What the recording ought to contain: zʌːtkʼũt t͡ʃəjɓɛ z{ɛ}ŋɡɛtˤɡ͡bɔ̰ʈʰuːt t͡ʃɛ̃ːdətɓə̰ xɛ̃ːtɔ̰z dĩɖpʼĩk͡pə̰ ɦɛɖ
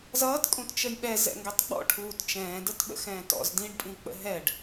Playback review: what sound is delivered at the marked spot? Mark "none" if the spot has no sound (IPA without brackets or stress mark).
ɛ̰